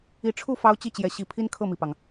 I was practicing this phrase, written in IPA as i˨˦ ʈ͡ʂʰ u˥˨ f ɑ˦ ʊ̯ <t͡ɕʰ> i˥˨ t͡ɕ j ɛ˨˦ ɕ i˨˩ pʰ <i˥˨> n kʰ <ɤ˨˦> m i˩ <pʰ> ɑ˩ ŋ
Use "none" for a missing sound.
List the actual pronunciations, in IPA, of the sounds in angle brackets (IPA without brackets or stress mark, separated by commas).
t͡ɕ, i˦, ɤ˥˨, p